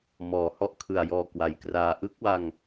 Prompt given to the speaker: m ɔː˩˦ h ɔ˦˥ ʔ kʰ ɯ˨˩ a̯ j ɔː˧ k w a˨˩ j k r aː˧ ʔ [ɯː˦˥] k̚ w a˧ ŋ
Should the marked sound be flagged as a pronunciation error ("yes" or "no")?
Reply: yes